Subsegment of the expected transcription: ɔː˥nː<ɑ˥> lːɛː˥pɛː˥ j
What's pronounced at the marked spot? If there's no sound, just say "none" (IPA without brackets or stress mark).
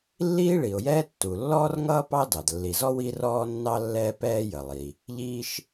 ɑ˥